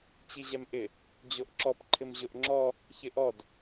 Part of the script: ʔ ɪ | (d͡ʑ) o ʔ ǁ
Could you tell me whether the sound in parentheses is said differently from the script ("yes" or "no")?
no